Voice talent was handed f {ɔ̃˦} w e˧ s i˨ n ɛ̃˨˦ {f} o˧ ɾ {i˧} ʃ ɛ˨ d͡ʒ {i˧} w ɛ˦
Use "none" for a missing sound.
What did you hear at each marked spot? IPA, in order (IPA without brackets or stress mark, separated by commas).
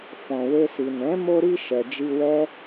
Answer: ɔ̃˨, m, i˧, i˧